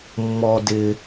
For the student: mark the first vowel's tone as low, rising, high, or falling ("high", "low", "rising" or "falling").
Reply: high